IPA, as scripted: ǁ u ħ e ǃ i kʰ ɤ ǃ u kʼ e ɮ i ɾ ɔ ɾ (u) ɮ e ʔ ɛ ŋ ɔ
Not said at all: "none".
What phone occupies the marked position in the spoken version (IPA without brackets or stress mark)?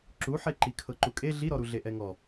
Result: u